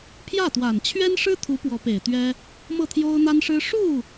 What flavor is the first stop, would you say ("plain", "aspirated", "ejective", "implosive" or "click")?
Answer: aspirated